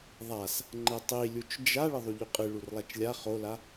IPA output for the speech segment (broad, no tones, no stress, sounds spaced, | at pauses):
ðˤ a s | ŋ͡ǃ ɛ tˤ i lʲ u t͡ʃ d͡ʒ a ɭ ɘ ðˤ u ʎ u qʼ ɨ ɭ u r lˠ a t͡ʃ lʲ a χ o l a